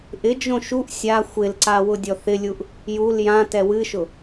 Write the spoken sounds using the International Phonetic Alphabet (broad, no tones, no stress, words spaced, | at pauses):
ʔɪ d͡ʒõʃuʔ sʲa xʷɪlǀa wʊdʲɔθɪlʲuʔ | jul jã tɛwɨʃʊ